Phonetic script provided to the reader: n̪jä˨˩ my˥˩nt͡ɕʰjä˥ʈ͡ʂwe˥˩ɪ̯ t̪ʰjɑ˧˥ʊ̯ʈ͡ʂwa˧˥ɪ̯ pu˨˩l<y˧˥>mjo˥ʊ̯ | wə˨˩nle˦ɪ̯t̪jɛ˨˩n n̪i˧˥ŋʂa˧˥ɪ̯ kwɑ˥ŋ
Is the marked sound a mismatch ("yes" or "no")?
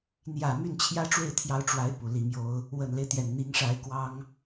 yes